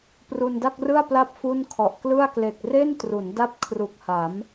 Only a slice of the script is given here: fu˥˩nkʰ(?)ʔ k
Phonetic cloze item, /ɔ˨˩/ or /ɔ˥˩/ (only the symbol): ɔ˨˩